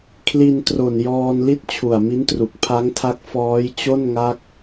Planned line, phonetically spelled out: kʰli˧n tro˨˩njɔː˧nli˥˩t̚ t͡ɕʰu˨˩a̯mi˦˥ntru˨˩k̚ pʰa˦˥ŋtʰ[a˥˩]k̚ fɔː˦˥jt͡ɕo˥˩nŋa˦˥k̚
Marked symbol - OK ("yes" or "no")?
no